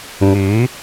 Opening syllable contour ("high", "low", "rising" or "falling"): rising